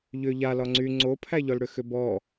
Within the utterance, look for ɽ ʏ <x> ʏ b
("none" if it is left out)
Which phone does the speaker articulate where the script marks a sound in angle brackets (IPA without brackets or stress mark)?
x